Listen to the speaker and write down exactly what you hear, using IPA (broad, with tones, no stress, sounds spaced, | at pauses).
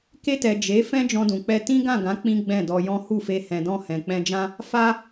k e˧ t ɛ˨ d͡ʒ e˨˦ f ɛ̃˦ d͡ʒ ɔ̃˧ d ũ˨ k͡p ɛ˧ t ĩ˦ ɡ ã˦˨ ɡ ã˨˦ k͡p ĩ˦ ɡ͡b ɛ̃˦˨ d ɔ˧ j ɔ̃˦ h u˦˨ f e˧ h ɛ̃˨ d ɔ̃˧ h ɛ̃˨ k͡p ɛ̃˧ d͡ʒ ã˦ | f a˦